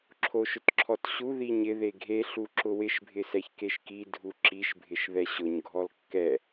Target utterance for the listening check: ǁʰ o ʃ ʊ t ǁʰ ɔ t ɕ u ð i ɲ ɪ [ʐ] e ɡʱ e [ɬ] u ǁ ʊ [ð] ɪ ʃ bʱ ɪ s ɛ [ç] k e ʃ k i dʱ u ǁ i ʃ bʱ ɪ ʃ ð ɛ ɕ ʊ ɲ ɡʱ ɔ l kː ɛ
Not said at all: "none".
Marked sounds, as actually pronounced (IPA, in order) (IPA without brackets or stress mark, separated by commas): ð, ɬ, w, ç